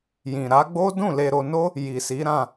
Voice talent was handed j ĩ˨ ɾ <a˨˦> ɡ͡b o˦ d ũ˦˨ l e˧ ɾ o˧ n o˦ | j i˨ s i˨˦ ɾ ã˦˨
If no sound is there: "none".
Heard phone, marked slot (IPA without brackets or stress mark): a˨˦